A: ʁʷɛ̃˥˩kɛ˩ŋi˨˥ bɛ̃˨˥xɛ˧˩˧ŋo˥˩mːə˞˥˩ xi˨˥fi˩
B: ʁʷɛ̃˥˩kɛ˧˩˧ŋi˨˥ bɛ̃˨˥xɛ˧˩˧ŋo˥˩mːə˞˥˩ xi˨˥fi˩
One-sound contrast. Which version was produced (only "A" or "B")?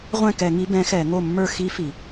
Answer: B